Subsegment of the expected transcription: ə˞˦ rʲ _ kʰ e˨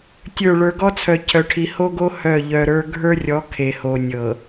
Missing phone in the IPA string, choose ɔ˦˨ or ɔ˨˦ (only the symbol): ɔ˨˦